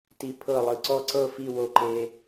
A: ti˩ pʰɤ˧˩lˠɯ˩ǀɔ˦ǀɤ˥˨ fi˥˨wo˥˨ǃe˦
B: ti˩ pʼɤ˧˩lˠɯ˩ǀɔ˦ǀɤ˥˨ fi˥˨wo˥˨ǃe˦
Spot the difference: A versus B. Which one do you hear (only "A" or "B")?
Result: A